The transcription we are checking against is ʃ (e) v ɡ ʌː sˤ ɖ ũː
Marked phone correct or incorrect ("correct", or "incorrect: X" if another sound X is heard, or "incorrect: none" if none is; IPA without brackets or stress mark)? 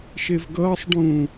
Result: correct